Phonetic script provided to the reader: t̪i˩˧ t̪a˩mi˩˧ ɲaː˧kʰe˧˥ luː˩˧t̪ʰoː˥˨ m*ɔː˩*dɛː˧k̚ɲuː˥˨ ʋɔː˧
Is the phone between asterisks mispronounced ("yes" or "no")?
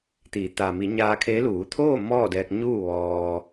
yes